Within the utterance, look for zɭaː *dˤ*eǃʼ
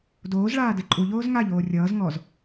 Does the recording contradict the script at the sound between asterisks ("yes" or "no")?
yes